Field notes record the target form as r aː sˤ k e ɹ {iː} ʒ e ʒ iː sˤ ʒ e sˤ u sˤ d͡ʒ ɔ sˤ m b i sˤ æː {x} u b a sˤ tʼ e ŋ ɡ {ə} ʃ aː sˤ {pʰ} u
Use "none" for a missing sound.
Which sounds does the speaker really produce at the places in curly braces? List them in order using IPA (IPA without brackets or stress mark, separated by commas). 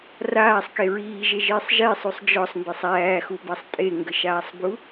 iː, x, ə, b